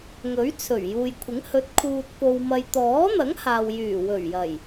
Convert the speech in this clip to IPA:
ŋ ɵ˨˥ ɥ t͡sʰ ɵ˨˩ ɥ j uː˨ j kʷʰ ɪ˨˥ ŋ h ɵ˨˥ t̚ kʰ uː˨ t̚ p o˨ w m ɐ˨ j t̪ ɔː˨˥ n̪ ɐ˨˥ ŋ h aː˨ w j yː˨˩ w ɵ˨˩ ɥ j ɐ˨˩ j

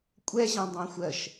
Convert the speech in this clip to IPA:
kʷʼ ɛ ʑ ẽ dˤ ẽ xʷ ɜ ʃ

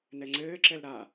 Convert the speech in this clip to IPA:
n ɛ ŋ͡ǀ ɘː ǁ ɛ l ɾ a

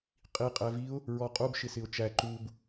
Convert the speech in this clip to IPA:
qʼ i qʼ ɛ v i ʊ̯ | ɹ ɔ qʼ u b ʃ ɪ s ɪ ʊ̯ t͡ʃ æ ǃ u b

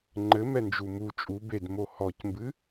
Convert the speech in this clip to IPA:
ŋ͡ǃ ɘ m ɛ n d͡ʒ u m u t͡ʃʼ u b e d m o h ɔ c m b ɨ

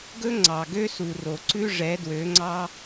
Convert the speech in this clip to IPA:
ɡ ɵ˦ ŋ͡ǀ ɑ˨ ɡ ø˦ s u˨ r o˨ ǀ ʉ˦ ʐ ɛ˨˦ d w ø˨˦ ŋ͡ǀ ɑ˦

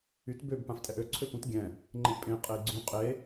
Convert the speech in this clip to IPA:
y t b ø b p ã f tʼ ɛ ʔ ø ǀʰ ø p ũ t ɡʲ ɛ̃ | ŋ͡ǃ ẽ ʔ pʼ ẽ qʼ e i̯ ɡ͡ǀ ũ qʼ e

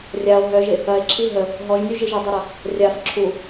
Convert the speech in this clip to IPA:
rʲ a o̯ ɦ œ ʒ ɪ | ɐ e̯ ǁʰ i ɦ ə | ɦ ɔ ʒ nʲ u ʒ i ʒ œ dˤ ɐ ɾ ɐ | rʲ a f ǁʰ u

